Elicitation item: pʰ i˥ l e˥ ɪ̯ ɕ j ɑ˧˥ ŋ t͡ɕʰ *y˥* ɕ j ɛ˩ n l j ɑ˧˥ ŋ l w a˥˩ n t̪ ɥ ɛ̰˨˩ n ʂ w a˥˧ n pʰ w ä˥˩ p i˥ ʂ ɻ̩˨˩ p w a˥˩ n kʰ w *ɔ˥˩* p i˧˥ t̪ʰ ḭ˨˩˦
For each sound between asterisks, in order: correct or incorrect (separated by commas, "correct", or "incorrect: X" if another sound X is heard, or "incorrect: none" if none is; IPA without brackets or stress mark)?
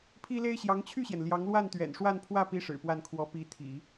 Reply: incorrect: y˥˩, incorrect: ɔ˧˥